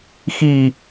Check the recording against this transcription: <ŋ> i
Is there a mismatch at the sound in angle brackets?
yes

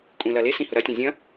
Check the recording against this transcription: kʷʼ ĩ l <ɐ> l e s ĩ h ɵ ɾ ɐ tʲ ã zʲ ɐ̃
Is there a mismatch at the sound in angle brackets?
no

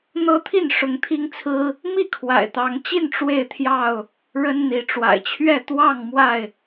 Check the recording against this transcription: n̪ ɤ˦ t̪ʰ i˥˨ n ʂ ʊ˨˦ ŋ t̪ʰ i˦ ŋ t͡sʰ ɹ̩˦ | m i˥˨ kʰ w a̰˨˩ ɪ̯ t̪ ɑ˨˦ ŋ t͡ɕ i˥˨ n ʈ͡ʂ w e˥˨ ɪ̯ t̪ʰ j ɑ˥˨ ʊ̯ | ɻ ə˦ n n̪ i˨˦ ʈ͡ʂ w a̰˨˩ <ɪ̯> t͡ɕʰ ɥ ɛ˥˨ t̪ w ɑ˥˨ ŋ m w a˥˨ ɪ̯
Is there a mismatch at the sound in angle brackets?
no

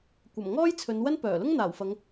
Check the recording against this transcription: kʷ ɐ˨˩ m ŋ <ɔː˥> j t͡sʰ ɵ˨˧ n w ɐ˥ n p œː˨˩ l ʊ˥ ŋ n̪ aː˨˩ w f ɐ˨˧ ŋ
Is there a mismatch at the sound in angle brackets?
no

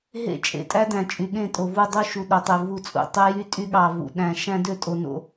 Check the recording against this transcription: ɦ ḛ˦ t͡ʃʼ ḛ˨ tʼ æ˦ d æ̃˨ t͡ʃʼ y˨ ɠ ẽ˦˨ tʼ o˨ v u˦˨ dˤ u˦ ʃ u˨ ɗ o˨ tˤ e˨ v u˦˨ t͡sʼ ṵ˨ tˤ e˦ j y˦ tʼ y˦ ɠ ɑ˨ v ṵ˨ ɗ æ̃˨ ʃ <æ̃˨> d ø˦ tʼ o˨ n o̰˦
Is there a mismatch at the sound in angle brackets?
yes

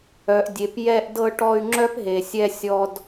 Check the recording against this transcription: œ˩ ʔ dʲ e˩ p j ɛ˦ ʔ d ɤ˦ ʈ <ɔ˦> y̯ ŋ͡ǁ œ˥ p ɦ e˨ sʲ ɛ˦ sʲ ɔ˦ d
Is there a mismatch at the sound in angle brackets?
no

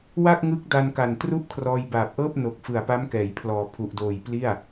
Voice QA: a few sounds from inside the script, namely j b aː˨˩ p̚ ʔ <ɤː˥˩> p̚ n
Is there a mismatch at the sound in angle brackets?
no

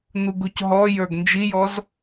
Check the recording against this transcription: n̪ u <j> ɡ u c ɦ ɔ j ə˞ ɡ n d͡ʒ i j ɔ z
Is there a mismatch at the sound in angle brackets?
yes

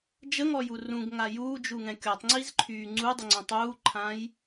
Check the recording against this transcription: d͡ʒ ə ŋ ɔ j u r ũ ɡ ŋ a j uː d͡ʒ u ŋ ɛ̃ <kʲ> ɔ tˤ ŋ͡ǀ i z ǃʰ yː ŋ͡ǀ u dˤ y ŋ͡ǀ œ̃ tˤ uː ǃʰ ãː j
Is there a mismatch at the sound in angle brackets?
no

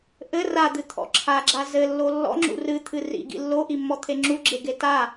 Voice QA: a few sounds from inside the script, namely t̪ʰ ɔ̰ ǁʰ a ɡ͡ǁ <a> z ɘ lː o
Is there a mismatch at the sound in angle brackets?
no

